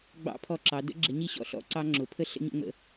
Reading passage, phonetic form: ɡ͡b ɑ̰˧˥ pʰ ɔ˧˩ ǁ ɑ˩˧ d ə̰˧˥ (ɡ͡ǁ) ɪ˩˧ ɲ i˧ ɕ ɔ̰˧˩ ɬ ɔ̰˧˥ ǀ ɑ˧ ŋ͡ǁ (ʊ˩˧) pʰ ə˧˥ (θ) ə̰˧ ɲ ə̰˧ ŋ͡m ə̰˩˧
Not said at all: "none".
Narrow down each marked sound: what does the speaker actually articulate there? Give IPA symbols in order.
ɡ͡ǁ, ʊ˩˧, ɬ

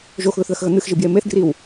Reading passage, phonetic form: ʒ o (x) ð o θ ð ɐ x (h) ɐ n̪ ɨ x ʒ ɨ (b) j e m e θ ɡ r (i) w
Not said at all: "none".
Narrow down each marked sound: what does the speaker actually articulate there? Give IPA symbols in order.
x, ɣ, b, i

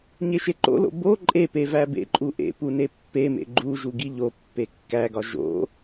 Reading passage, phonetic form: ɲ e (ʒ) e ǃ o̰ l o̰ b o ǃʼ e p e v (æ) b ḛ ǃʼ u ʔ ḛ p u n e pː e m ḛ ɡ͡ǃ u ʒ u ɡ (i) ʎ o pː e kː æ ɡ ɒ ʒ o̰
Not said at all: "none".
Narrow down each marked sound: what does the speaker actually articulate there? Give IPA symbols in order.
ʃ, æ, i

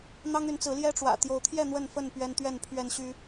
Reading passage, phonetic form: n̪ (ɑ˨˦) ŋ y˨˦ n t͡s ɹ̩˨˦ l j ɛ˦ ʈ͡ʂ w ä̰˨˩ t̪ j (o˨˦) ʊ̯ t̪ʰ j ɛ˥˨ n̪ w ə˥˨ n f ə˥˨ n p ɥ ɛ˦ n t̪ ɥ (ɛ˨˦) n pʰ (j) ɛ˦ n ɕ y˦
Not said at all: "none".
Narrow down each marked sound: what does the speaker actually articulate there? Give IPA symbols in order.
ɑ˦, o˨˦, ɛ˥˨, ɥ

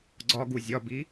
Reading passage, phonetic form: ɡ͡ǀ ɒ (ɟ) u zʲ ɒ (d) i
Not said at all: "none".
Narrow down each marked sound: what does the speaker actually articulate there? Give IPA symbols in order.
ɡ, b

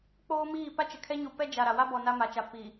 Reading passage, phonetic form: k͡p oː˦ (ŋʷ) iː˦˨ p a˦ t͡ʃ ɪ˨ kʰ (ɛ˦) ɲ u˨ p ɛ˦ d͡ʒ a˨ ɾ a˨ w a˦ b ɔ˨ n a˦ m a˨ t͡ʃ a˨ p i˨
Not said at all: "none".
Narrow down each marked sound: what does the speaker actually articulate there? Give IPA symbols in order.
m, ɛ˦

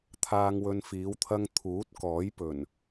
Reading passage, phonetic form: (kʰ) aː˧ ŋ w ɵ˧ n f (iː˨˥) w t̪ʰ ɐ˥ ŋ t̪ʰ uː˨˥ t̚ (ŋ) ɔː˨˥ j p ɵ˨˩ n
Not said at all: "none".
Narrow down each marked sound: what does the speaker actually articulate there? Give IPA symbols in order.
t̪ʰ, iː˨˥, k

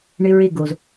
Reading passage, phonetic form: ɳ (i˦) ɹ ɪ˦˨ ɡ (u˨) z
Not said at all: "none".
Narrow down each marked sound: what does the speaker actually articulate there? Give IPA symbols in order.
ɪ˦, o˨

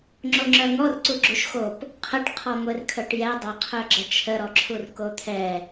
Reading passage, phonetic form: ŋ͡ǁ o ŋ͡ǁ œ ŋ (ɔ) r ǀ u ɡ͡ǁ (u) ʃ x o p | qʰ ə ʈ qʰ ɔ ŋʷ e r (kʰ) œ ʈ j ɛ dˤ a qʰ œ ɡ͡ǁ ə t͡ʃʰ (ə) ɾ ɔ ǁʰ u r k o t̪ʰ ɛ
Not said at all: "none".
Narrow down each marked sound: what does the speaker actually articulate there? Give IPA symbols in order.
ɔ, u, kʰ, ə

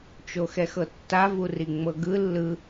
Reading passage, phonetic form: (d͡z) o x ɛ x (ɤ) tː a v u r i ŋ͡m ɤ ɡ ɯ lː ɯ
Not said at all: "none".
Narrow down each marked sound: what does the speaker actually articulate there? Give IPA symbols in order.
t͡ʃ, ɤ

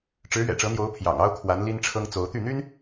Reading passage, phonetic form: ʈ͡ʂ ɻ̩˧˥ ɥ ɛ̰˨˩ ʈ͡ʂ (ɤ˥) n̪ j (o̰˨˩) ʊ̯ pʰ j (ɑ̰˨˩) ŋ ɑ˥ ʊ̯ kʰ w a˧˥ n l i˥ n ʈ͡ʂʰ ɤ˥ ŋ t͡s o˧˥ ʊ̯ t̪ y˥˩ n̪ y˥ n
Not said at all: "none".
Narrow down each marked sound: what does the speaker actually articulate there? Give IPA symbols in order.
ɤ˧˥, o˧˥, ɑ̰˨˩

